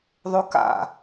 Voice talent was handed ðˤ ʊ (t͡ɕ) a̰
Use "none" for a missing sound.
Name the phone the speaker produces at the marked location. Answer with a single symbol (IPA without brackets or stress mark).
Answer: k